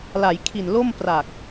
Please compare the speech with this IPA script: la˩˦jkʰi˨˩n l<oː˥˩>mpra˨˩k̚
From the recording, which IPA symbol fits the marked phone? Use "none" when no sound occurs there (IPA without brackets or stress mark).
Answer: o˥˩